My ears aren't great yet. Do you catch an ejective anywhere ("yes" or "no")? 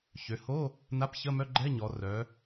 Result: no